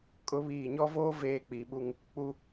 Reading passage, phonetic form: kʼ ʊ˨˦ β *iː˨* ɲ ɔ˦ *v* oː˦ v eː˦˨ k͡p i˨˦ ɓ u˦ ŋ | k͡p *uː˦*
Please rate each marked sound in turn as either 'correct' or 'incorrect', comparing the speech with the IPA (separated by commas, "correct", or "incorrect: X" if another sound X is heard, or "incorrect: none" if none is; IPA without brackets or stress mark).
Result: correct, correct, incorrect: u˦